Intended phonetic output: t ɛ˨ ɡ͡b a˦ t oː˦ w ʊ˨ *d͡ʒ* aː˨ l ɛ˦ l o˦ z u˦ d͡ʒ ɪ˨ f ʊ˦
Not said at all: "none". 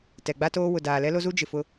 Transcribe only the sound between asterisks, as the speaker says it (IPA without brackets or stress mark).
d